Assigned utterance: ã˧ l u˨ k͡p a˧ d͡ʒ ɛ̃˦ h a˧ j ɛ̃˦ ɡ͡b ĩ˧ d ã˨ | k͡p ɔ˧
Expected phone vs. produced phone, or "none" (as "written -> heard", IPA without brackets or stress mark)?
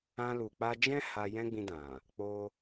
ɔ˧ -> o˧